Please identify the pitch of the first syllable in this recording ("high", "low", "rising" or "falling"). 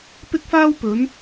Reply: high